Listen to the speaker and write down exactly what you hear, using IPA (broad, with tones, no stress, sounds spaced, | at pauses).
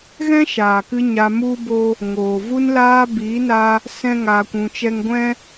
ɣ ɛ̃˦ ʃ aː˨ k ɨ˧ ɲ a˧ m u˦ b o˦ | ŋ oː˨ v u˧ n l aː˧ b iː˨˦ n a˦ | s ɛ̃˦ ŋ aː˧ kʷ ũ˧ t͡ʃ ɛ˦ ŋ ɡʷ ɛ̃˦